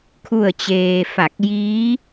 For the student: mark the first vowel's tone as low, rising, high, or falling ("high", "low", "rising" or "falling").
falling